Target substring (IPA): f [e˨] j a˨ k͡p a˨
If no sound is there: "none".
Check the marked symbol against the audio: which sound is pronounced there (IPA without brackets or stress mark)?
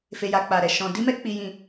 e˨